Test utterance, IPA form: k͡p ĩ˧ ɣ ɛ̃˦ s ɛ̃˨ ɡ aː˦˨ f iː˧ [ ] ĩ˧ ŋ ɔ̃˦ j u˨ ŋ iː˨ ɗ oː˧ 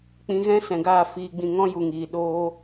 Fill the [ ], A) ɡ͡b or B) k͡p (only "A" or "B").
A